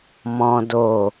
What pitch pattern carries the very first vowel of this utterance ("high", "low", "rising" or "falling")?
high